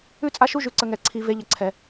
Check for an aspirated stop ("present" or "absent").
present